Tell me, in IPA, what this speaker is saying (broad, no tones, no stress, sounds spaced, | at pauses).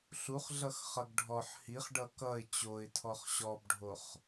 ɬ u χ ɮ ʌ x χ ʌ ɡ ɖʱ ɔ ħ h i χ ɖ ʌ k ʌ ɪ̯ t͡ɕ o ɪ̯ tʰ ɔ χ ɕ ɔ b ɖʱ o χ